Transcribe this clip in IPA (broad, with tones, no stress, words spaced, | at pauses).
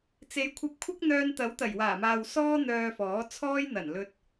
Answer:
t͡se˨˧jkʷʰɐ˧p̚kʷʰɐ˥k̚n̪œː˧n t̪ɐ˨˥wt̪ɐ˨˩jwaː˨˩maː˨w sɔː˥ n̪œː˧fɔː˨˥ t͡sʰɔː˥jn̪ɐ˨˩n lɵ˧t̚